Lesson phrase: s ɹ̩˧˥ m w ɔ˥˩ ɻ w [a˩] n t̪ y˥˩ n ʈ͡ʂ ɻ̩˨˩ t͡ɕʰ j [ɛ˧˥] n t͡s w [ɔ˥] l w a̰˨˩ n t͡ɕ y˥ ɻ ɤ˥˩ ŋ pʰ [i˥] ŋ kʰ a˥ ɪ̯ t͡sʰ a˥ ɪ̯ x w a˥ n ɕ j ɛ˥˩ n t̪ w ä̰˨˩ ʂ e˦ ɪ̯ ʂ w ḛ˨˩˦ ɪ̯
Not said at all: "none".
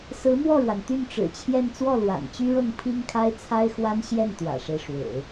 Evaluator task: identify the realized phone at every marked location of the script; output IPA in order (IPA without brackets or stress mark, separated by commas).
a˩, ɛ˥˧, ɔ˥˩, i˥